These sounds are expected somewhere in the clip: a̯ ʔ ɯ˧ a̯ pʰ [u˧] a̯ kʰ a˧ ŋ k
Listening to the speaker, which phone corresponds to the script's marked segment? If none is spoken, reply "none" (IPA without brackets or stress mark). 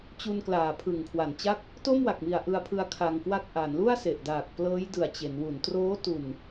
ɯ˧